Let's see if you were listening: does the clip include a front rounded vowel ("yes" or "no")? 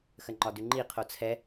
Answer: no